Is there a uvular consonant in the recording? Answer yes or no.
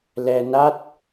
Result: no